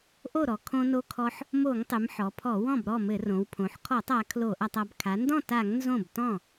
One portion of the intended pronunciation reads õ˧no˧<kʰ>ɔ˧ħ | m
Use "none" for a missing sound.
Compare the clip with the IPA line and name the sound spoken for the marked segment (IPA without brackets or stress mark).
kʰ